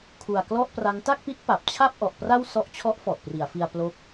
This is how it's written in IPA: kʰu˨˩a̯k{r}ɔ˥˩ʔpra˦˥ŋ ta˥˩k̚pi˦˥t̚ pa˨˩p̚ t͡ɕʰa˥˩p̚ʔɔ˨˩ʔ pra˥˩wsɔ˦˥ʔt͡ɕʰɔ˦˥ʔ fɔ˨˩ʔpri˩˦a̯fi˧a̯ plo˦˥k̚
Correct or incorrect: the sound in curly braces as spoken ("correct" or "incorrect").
incorrect